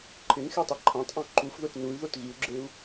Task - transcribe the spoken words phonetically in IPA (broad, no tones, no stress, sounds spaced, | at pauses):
ǃʰ ɪ n x e tˤ ɛ ǃʰ ã tˤ ʔ ɔ̃ ǃ u f ð ʊ t n u y̯ ð o t ɣ i u̯ ɡ͡ǁ e u̯